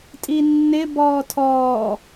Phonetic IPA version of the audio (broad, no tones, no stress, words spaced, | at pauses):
tʼinːɪ bɔːtʰɔː